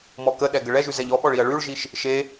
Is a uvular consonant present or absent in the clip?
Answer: absent